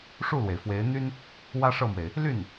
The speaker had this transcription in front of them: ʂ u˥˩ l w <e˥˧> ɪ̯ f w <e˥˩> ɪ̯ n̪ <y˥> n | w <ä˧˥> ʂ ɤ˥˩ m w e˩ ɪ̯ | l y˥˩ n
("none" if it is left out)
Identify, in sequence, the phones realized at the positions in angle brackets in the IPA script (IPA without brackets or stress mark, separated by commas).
e˩, e˧˥, y˥, ä˥